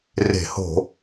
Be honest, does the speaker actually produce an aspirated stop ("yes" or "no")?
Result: no